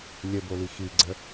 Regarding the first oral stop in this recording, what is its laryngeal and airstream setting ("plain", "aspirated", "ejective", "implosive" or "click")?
plain